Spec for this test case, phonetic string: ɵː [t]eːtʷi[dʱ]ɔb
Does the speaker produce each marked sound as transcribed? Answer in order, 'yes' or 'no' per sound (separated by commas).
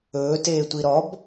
yes, no